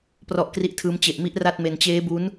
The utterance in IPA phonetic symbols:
prɔ˦˥ʔkri˦˥ʔtʰɯː˦˥m t͡ɕe˨˩ʔmi˦˥ʔ ra˥˩t̚ me˧n t͡ɕeː˦˥bu˦˥n

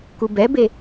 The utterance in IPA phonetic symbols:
kubɛbe

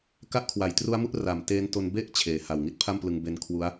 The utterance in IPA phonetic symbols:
ka˦˥ʔkʰwa˩˦jtru˦˥a̯mu˦˥ʔ ra˨˩m teː˦˥nto˧n be˥˩ʔ t͡ɕʰeː˩˦ha˨˩w ŋi˥˩t̚pʰa˥˩mplɯ˧ŋ be˧n kʰwu˦˥a̯

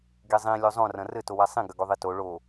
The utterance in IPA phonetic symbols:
ɡezˤĩ lʲozˤõ rɐ̃rɘ towasˤĩ ɡɐɡoðˤito ɭo

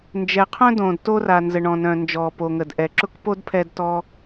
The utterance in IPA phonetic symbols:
nd͡ʒɛ˩ qʰœ̃˥dõː˩d to˥ra˩nzə˩ ɳɔ̃˩nœ̃˩nd͡ʒɔː˩ po˩ŋə˩dʔɛ˩ǁʊ˥k po˥dpʰɛ˧d tɔ˧

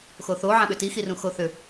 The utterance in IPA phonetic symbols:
xoθo ʕãɓʏti xirũxoθʏ

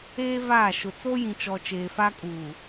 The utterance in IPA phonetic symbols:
eː˦vaː˦˨ ʃʊ˨ t͡so˦jĩ˨t͡ʃɔ˨ t͡ʃeː˨fa˦kʼuː˨

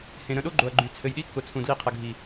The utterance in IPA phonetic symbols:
hẽ˨ ɾə̃˧ɗo˦ɡ͡ǃo˨ɐ̯ɡ͡ǃy˨ t͡sʰɘ˨jɗi˦kːʊ˨ t͡sʰũ˨dli˧qʰə˨ɡʱi˨

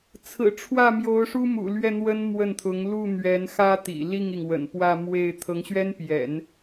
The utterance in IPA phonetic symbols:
t͡sʰɹ̩˨˩ʈ͡ʂʰwä˥˩ mjo˧˥ʊ̯ʂu˥mṵ˨˩lɥɛ˥˩ n̪wə˥nmwə˥˩nt̪ʰʊ˧˥ŋ lu˥˩ n̪ɥɛ˧˥nxä˥t̪ḭ˨˩ li˥˩ŋi˩ŋwə̰˨˩n pwä˥˧mwe˥˩ɪ̯ t̪ʰɤ˧˥ŋɕɥɛ˥npjɛ̰˨˩˦n

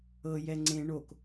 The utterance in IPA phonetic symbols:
ɤjɛ ŋ͡ǀẽ ɳok

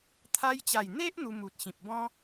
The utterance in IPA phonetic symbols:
t̪ʰa˧jt͡ɕa˨˩jn̪e˦ʔ n̪u˧mu˨t̚ ɕĩ˨p̚bɔ̃˦

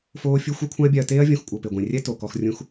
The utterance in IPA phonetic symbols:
foː˦fʲu˦ xʷɛ˦kʷʰã˦ɐ̯bʲa˧ɐ̯teː˦ɐ̯ vʲõ˧xkʷʼɤ˨pe˨ɡʷẽ˨ rʲɛ˦ to˨kɔ˧x rʲũ˦x

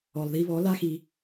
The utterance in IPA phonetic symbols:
ɔ˨lˠði˧βɔ˨˦ la˦xi˧

